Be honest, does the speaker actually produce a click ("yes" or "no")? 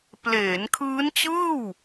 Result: no